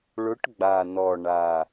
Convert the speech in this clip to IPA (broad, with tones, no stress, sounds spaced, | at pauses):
ɭ ʊ˧˥ ʈ ɡ͡b a˨˩ n ɔ˨˩ ɳ a˨˩